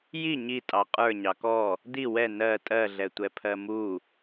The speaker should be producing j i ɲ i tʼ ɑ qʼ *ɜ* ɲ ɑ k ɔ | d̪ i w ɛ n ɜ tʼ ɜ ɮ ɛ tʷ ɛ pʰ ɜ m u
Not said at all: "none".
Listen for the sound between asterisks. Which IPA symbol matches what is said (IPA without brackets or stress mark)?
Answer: ə˞